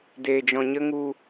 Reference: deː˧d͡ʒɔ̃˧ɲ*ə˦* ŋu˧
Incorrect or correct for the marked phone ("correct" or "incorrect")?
correct